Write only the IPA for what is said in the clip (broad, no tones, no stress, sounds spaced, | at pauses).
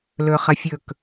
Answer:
l ɵ χ ɐ fʲ ɵ k